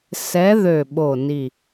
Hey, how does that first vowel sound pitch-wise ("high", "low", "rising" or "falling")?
rising